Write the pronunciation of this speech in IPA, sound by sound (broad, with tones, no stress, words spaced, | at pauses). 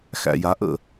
xæ̰˧˩ja˩˥ ʔə̰˥˩